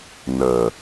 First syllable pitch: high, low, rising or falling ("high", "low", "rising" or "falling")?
low